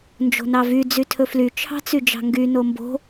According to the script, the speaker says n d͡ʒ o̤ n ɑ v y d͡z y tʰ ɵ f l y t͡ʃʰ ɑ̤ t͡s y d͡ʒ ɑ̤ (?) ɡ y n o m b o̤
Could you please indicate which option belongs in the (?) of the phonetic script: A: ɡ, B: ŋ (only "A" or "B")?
B